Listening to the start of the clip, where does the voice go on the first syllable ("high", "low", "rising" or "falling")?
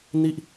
falling